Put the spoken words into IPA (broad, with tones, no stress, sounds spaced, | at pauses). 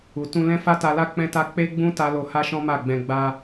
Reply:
u˨ t ũ˧ l ɛ̃˦ f a˦ t a˧ l a˦ k͡p ɛ̃˦ t a˦ k͡p e˦ ɡ͡b ũ˦ t a˦ l o˧ h a˦ ʃ ɔ̃˦ m a˦˨ ɡ͡b ɛ̃˧ ɡ͡b a˧